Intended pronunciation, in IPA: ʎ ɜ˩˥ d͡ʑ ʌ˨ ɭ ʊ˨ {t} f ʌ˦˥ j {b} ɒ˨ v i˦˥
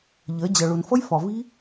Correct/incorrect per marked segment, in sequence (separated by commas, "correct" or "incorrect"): incorrect, incorrect